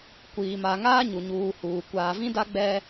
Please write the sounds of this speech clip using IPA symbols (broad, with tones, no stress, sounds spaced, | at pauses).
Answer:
kʷ iː˨ m a˨ ŋ aː˦ ɲ u˨ ɲ uː˨ h uː˨ kʷ aː˨ v ĩ˦ d a˦ ɡ͡b ɛ˦